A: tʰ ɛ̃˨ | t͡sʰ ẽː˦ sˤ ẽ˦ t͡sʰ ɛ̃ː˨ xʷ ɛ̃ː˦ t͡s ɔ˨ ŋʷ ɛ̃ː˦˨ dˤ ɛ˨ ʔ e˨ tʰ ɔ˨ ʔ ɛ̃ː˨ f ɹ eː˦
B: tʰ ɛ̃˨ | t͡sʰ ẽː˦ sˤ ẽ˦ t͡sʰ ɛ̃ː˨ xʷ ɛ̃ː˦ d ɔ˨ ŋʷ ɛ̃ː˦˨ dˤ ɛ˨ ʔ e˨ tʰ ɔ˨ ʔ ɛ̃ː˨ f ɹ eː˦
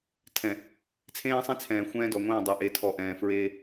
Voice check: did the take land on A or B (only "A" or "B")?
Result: B